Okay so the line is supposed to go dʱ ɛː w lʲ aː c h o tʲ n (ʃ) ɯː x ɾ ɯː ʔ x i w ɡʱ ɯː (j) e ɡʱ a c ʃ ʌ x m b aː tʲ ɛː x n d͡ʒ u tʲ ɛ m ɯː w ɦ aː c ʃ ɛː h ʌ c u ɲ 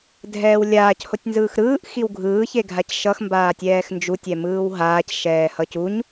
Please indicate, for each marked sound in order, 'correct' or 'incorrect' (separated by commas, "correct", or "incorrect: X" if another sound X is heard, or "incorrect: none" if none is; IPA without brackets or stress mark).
incorrect: z, incorrect: ç